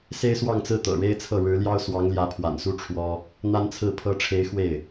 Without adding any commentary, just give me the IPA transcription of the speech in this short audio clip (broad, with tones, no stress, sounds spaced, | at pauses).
s e˥ ɪ̯ s w ɑ˥˧ ŋ t͡s ɹ̩˥˩ t̪ ɤ̰˨˩ ɻ e˥ ɪ̯ t͡sʰ ɤ˥˩ ɻ ɻ̩˧˥ l j ɑ˥ ʊ̯ s w ɑ˧˥ ŋ l j ä˧˥ pʰ w a̰˨˩ n s u˥ ʈ͡ʂʰ w ɔ˥ | n̪ a˥ n t͡sʰ ɹ̩˥˩ pʰ ɤ˥ ʈ͡ʂʰ e˧˥ ɪ̯ x w e˥˩ ɪ̯